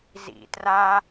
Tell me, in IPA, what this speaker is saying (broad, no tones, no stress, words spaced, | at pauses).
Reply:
zḭ tra